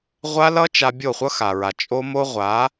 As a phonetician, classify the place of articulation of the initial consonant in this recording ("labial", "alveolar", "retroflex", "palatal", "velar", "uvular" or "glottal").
uvular